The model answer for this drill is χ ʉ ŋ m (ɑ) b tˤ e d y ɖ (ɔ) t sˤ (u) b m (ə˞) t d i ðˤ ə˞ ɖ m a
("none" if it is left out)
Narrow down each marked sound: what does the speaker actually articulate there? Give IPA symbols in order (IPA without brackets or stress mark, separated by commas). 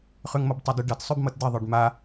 ʌ, ʌ, ʉ, ʌ